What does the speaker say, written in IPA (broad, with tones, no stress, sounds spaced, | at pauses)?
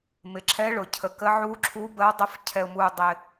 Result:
m ɪ˩ ǁʰ ɛ˨˦ ɭ ʊ˩ cʰ ə˩ k ə˨˦ ʕ u˨˦ ǁʰ u˨˦ b ə˨˦ w dˤ ʊ˨˦ f cʰ ɛ˩ ʊ̯ m u˩ dˤ ɪ˩